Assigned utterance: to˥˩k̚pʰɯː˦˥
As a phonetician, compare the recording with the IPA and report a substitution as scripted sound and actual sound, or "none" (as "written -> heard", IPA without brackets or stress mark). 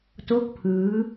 none